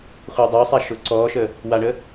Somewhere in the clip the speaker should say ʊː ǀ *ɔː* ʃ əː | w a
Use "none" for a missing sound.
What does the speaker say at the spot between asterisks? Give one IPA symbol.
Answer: ɔː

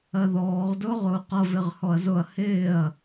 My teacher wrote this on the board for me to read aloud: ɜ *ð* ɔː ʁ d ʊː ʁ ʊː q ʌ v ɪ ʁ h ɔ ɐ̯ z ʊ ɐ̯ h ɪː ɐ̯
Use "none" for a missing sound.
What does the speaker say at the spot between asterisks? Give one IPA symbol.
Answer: ð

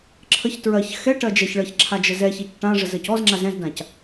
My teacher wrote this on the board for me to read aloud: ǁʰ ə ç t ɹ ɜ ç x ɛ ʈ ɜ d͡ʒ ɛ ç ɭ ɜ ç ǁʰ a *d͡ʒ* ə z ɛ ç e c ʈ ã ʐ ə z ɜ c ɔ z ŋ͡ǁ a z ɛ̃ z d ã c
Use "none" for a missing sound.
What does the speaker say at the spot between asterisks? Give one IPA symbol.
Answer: d͡ʒ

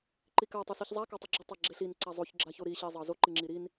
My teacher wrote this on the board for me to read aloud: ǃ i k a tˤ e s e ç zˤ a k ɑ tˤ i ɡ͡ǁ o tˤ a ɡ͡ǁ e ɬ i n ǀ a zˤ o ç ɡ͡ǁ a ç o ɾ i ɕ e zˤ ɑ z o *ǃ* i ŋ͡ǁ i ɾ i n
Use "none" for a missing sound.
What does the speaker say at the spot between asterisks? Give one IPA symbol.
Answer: ǃ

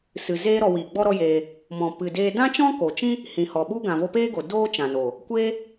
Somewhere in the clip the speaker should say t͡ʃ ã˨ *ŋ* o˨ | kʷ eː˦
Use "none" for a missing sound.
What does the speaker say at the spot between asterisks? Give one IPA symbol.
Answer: n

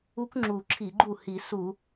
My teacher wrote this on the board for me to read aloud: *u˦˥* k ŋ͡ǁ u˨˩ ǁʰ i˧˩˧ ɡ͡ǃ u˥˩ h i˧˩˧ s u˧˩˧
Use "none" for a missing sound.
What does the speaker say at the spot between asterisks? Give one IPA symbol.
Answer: u˦˥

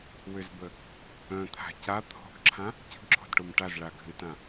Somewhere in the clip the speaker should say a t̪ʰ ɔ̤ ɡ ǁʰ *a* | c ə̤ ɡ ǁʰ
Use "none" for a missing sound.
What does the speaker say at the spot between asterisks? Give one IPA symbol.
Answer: ã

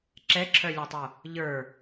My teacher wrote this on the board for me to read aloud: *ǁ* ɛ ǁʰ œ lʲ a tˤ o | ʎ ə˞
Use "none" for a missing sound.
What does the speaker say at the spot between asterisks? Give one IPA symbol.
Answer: ǁ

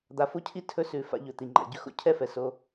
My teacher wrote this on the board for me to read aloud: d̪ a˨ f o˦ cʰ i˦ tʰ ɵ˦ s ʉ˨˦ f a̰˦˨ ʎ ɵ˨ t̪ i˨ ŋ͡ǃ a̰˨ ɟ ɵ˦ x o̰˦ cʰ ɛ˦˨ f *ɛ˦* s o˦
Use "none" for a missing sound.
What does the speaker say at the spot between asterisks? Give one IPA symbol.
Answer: ɛ˨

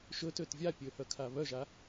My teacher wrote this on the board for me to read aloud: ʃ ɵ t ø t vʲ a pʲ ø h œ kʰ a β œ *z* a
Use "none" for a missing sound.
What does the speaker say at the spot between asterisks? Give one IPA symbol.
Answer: ʒ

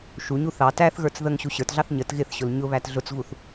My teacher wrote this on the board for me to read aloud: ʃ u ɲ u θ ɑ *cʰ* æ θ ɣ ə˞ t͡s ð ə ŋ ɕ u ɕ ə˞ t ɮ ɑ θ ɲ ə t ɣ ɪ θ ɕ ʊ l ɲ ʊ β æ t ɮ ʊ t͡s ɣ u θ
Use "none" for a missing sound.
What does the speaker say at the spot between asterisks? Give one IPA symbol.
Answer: t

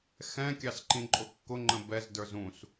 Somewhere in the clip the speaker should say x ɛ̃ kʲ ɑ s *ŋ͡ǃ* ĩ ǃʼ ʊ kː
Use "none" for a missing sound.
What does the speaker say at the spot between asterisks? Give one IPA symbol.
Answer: ǃ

